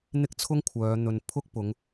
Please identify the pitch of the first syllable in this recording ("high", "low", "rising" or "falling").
high